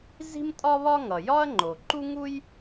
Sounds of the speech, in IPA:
z i̤˥ m tʼ ɒ˥ β ɒ˥ ŋ ʌ˩ j ɒ˥ ɐ̯ ŋ͡ǃ o˩ ǃ u˥ ŋ u˥ j

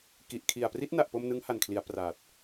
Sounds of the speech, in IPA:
k i˨˩ ʔ kʰ i˨˩ a̯ p r i˦˥ t̚ n a˨˩ ʔ p o˧ m n ɯ˦˥ ŋ h a˨˩ n kʰ l i˩˦ a̯ p r aː˨˩ t̚

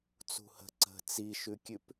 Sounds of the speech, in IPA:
t͡s ṳ h ə̤ ǀ ə̤ t͡s i ʃ ʉ kʲ ʉ p

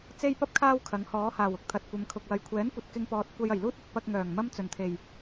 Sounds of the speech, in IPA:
t͡s e˥ j p ɐ˥ p̚ kʰ aː˥ w kʰ ɐ˨˥ ŋ h ɔː˨˥ h aː˨˩ w ʊ˧ k̚ t̪ʰ ɐ˨ t̚ kʷ ɐ˨˧ m kʰ ʊ˨ k̚ w ɐ˨˧ j kʷʰ ɛː˨˥ n kʷ ɐ˨ t̚ k ɪ˧ ŋ p ɔː˨ t̚ kʷ ɐ˧ j ɐ˨˩ j l uː˥ t̚ ɐ˨˥ t̚ p ɐ˧ k̚ ŋ œː˨˩ ŋ m ɐ˥ m t͡s ɵ˨˩ n t̪ʰ e˨˩ j

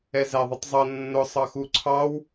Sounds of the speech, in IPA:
ɛ z æ ðˤ ɪ tˤ zˤ ʌ nː ʊ sˤ ɑ x u ǀʰ ɑ w

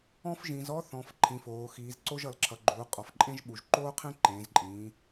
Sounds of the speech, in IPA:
ɔ̃˥ f ʒ ĩ˩˧ z ɔ˥ θ ɔ̃˩˧ f ǃʰ ĩ˩˧ f oː˩˧ x iː˩˧ z ǀ o˥ ʒ ʌ˩˧ l ǁʰ ʌ˩˧ ɡ͡ǃ uː˩˧ qʼ ɔ˩˧ f ǃʼ ẽ˥ ʒ ɓ u˩˧ ʒ ǃ oː˥ qʰ ẽ˥ ǃ ẽː˩˧ z ǃʼ ĩː˩˧

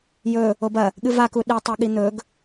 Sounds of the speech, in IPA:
j ɵ | o b ɐ | ɠ ɨ v a k u ɗ i tˤ u ɠ i n̪ ɵ ɡ

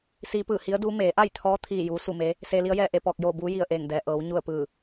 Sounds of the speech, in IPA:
s iː˧˥ p ɯː˧˩ h i˧˥ ə̯ d uː˧˥ m eː˩˧ ʔ a˥˨ j t̪ʰ ɔː˧˥ t̪ʰ iː˥˨ j uː˧˥ s u˥˨ m e˧˥ | s eː˧ l i˧˥ ə̯ j ɛː˥˨ ʔ e˥˨ p ɔː˥˨ k̚ j oː˥˨ b uː˧˥ j i˧˩ ə̯ ʔ eː˧˩ ŋ d ɛː˩ ʔ ɤː˩˧ w ɲ u˥˨ ə̯ p ɯː˧˩

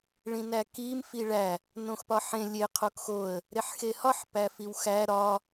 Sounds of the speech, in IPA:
ɭ ĩ n æ k i m f i ɭ æ | n õ x p ɒ ħ ẽ lʲ e qʰ o k x o ə̯ | ɾ e ħ x e h ɒ ħ p æ f i w x æ ɾ ɒ

